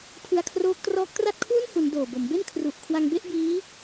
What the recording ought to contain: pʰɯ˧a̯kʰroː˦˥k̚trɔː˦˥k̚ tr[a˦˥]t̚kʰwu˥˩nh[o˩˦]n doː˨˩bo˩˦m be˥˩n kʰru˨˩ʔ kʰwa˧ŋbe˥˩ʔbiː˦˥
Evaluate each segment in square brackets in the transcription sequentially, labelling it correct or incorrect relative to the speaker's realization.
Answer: incorrect: a˥˩, incorrect: u˩˦

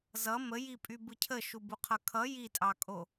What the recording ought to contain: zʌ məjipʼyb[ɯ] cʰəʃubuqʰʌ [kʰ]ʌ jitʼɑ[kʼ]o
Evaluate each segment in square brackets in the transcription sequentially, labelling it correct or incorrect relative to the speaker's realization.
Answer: correct, correct, correct

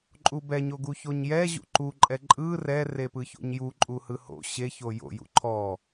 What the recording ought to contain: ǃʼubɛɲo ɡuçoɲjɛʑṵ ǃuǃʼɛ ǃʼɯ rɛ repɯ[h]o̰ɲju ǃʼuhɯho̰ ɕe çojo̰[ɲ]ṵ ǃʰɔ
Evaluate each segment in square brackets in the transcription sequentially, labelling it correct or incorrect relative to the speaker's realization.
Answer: incorrect: ç, incorrect: j

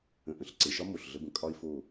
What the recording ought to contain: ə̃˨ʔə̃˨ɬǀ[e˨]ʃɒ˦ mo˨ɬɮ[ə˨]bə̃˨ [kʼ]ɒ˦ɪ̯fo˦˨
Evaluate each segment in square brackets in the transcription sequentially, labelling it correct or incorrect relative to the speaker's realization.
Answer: correct, incorrect: ə˧, correct

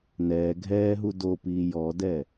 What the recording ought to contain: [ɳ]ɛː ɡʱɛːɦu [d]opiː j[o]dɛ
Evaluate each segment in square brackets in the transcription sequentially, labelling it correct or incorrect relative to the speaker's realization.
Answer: incorrect: n, correct, incorrect: ɔ

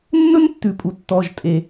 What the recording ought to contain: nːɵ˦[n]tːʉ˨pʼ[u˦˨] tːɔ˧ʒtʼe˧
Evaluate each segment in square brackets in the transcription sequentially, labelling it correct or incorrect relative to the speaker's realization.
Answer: correct, incorrect: u˨

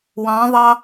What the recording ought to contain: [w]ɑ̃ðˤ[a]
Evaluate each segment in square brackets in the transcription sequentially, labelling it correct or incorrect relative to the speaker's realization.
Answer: correct, incorrect: ɑ

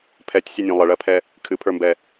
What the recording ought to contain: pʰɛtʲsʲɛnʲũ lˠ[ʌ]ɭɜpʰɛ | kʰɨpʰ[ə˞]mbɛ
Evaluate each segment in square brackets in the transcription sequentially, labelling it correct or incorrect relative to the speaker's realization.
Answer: incorrect: ə, correct

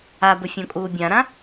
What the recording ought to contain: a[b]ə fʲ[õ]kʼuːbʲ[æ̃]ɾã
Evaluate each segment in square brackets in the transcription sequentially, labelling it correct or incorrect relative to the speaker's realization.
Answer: correct, correct, incorrect: ã

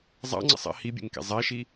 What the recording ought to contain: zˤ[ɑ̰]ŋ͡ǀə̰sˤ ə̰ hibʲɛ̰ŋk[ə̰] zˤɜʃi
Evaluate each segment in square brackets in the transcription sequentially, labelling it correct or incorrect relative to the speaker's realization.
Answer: correct, incorrect: ɛ̰

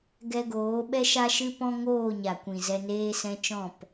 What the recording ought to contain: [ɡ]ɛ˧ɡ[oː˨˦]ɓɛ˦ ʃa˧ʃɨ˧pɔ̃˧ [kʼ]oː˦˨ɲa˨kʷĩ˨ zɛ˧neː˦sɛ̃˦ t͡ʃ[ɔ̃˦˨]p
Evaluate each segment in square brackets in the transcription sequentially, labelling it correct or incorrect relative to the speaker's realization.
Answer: correct, correct, incorrect: ŋ, correct

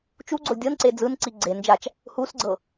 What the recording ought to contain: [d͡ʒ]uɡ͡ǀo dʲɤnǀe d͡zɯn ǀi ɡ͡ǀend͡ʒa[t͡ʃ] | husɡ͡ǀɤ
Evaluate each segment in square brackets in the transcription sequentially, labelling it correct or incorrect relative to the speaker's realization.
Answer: incorrect: t͡ʃ, correct

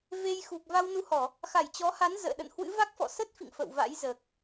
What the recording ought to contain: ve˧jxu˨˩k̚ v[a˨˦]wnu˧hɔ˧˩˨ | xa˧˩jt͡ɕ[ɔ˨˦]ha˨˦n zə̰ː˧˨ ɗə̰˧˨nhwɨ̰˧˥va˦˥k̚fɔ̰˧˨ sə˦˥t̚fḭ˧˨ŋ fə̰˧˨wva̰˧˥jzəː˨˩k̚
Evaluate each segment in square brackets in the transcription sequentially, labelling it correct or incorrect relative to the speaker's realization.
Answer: incorrect: a˧, correct

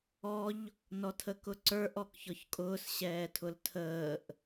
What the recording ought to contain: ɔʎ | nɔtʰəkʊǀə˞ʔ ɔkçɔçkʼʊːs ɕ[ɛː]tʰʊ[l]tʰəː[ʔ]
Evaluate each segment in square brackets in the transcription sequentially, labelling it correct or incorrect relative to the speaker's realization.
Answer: correct, correct, correct

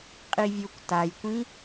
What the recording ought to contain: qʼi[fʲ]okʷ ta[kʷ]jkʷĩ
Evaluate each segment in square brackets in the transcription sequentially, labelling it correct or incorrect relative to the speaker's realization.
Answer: incorrect: vʲ, incorrect: none

